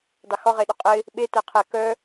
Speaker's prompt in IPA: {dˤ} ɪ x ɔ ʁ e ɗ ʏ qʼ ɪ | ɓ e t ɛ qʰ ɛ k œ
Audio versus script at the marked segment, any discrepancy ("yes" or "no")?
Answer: no